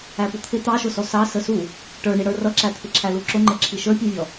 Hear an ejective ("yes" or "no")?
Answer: no